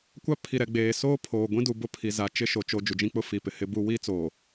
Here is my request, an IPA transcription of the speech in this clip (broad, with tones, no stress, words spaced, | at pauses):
kʷa˦pʰi˨ɾɛ˨ ɡ͡beː˨soː˦pʰoː˨ ɡʷĩ˦du˨bʊ˦ pʰi˨za˨ t͡ʃɪ˦ʃo˨ t͡ʃo˨ d͡ʒu˨d͡ʒĩ˦k͡pʊ˦ fi˨ pɪ˨hɪ˦bu˦ wi˦t͡soː˨